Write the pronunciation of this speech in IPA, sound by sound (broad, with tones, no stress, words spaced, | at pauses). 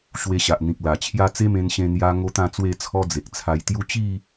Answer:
ɕwe˧ɕa˨ʔn̪ĩ˨k̚ la˨˩t͡ɕʰja˥˧ t͡se˦mẽ˧n ɕẽ˧n̪ja˧ ŋo˦t̪ã˥˧t͡swe˥˧t͡sʰɔ˦ d͡ze˨k̚t͡sʰa˧jt̪ju˦ t͡ɕi˥˧